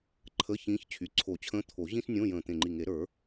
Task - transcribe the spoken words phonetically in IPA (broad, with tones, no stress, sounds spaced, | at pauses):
ǃʰ ə˧˥˧ ç ĩː˧˥ ç t͡ɕʰ y˩˧˩ ǀʰ o˨˩˦ t͡ɕʰ ə̃ː˧˥ t̪ʰ o˨˩˦ ʑ ĩ˥ s nʲ õ˧˥˧ j ə̃ː˧˩ t̪ ẽ˧˩ ŋ͡ǃ i˧˩ ŋ e˨˩˦ ɾ ə˞˨˩˦